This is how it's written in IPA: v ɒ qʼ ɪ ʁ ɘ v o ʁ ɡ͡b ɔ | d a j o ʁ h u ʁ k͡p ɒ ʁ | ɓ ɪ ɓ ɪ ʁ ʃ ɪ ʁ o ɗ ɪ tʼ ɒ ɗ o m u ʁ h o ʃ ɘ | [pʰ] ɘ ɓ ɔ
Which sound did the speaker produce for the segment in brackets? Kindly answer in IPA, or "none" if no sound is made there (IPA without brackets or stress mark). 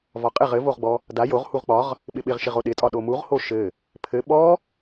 pʰ